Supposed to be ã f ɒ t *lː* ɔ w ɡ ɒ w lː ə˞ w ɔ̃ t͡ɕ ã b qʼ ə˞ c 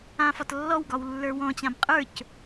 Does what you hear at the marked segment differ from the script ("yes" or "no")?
no